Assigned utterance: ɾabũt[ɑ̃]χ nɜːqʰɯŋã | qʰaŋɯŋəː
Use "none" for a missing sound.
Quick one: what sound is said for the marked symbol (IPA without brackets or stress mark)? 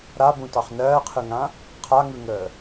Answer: ɑ